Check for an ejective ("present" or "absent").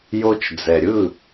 absent